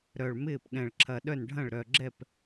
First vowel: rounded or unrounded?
rounded